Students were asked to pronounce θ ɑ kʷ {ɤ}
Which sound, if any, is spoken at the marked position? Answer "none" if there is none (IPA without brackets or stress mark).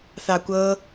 ɤ